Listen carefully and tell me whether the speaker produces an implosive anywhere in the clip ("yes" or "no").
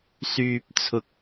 no